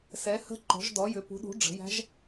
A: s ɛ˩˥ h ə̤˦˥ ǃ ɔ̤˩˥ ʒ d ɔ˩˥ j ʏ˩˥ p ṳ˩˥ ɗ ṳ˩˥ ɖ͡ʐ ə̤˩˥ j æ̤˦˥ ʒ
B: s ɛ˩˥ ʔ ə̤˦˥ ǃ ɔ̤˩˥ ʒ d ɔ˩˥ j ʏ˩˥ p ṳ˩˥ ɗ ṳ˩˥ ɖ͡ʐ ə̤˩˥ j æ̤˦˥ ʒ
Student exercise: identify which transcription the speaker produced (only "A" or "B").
A